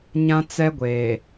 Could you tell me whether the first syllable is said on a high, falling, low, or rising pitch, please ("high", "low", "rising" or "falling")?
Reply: high